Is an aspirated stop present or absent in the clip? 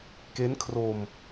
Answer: present